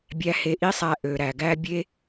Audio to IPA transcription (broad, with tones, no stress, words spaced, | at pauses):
bʲæ˧he˧ʔi˦sˤæ˧ ʔø˨ɾæ˨ɡæ˦ bʲe˦